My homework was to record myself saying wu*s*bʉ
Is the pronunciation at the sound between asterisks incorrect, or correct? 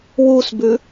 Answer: correct